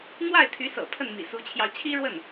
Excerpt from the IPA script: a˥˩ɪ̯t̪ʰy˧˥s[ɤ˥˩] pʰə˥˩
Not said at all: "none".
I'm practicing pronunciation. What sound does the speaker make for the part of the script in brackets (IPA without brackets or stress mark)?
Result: ɤ̰˨˩